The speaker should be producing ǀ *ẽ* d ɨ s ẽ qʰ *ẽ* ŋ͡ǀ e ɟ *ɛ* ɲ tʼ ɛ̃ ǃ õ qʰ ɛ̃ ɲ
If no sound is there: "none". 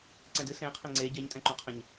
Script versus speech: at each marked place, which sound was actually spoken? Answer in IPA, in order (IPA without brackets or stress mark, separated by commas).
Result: ɛ̃, ẽ, ɛ